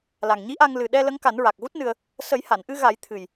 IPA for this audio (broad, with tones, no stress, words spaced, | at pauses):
la˨˩ŋɲi˧˥ʔa˧ŋ lɨ˨˩ɗɛ˧ lə˧˥ŋka˨˩˦nɹa˨˩k̚ ɣu˦˥t̚nɨ˧ə̯ | sə˨˩˦j ha˨˩˨nʔɨ˧ɣa˨˩˦j t̪ʰɨ˨˩j